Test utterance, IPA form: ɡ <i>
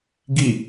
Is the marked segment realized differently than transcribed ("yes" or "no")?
no